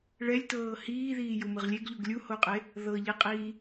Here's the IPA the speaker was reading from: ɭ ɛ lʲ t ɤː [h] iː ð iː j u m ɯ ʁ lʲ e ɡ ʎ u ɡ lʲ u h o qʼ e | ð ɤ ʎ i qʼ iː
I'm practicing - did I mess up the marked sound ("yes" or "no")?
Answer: no